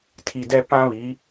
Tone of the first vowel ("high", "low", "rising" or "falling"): low